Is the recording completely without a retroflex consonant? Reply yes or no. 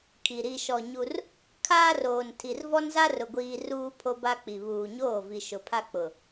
yes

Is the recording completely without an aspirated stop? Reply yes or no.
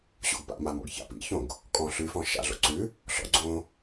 yes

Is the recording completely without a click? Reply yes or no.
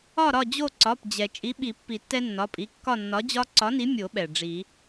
no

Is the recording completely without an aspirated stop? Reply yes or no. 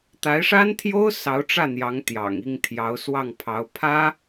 no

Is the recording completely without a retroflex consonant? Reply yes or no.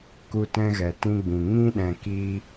yes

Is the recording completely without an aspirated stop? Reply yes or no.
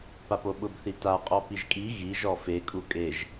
yes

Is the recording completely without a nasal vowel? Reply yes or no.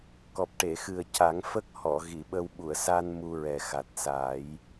yes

